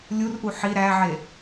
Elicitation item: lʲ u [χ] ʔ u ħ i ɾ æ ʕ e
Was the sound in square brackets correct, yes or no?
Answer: no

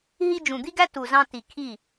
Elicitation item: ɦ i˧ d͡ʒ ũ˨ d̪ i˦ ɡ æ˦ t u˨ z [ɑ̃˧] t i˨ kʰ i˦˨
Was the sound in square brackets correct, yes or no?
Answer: yes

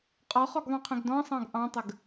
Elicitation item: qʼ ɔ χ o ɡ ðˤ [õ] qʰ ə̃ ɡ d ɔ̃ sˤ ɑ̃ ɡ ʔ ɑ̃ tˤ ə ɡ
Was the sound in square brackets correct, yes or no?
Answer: yes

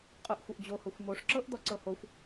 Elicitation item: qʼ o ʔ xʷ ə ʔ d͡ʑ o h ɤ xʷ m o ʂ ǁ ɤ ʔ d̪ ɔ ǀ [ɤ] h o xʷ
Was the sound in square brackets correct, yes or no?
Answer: yes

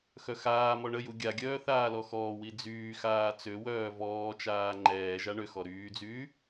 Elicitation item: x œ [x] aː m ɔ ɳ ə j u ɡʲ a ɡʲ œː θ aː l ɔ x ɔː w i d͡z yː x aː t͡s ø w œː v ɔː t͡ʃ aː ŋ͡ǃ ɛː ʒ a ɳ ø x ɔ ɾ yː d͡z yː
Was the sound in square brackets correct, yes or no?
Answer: yes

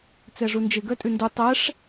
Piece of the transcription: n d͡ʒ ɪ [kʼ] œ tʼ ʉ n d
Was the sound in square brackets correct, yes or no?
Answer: no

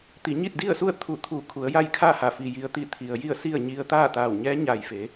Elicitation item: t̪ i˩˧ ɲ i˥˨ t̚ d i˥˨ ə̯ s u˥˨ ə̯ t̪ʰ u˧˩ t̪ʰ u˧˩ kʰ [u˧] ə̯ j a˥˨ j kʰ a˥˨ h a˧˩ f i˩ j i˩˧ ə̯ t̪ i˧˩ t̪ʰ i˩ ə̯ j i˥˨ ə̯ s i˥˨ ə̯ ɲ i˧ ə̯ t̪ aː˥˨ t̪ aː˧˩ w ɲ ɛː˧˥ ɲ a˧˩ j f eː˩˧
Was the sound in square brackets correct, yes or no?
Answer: no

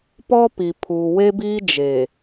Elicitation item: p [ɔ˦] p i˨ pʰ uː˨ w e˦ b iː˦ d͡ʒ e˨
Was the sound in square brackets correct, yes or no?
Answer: yes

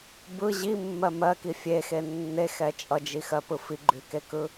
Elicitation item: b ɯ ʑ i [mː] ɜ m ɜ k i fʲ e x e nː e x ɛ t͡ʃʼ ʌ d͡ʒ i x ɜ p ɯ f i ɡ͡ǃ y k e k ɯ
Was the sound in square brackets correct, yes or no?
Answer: yes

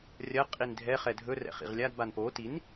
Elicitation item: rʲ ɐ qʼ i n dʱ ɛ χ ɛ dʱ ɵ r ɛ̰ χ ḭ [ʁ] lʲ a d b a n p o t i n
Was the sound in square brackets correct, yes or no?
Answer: yes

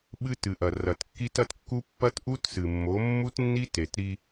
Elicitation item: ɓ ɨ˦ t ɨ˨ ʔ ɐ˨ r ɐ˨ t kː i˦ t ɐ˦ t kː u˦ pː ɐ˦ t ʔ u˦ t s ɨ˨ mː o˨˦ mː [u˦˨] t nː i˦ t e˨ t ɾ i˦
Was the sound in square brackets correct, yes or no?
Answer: no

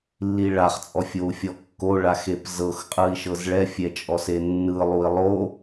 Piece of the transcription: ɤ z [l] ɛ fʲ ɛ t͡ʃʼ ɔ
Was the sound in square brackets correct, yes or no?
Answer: no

